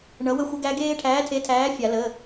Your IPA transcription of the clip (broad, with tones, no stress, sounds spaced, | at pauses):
ɳ ʌ˨˥ w ə˦ xʷ ə˦ ɡ æ˦ ɡ eː˦ ʈʰ æː˨˥ tʰ e˨˥ tʰ æː˨˥ fʲ a˨˩˦ l ə˩˧˩